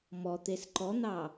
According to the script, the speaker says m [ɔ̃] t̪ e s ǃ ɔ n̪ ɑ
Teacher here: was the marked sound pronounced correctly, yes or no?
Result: no